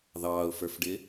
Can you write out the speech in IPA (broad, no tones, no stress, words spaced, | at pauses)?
ðɑːʊ̯fə˞fɖɪː